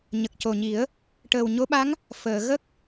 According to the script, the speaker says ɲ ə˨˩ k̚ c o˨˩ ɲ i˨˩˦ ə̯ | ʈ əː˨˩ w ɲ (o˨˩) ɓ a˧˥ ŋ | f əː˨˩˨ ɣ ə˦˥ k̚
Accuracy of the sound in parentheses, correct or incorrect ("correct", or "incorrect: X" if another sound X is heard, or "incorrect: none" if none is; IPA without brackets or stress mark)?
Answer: incorrect: o˧˥